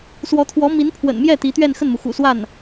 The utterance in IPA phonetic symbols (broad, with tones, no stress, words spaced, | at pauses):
swɔ˧˥t̪ʰwɔ˧˥ mi˧˥npʰwə̰˨˩nmjɛ˥˩ t̪i˧˥ t̪ɥɛ˥˧nxə˥˩nmu˩ xṵ˨˩swa˥˩n